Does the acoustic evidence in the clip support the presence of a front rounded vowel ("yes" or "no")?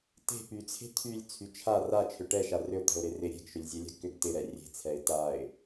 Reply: yes